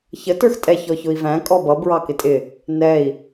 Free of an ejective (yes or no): no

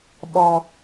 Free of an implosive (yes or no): no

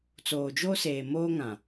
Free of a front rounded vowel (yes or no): yes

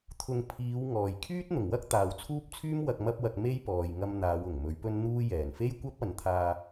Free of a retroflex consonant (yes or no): yes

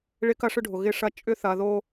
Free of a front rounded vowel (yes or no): no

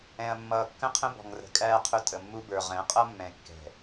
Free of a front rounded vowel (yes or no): yes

